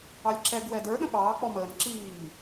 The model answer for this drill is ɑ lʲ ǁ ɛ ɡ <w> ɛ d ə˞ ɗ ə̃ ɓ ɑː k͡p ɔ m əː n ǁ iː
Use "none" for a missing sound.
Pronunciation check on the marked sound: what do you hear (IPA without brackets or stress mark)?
w